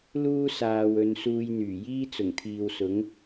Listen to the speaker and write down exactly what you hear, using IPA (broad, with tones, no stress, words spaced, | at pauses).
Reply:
luː˥saː˨w ɵ˨˧nsuː˧jn̪yː˨˩ jiː˥t͡sʊ˨˩ŋt̪ʰiː˨wsʊ˨˥ŋ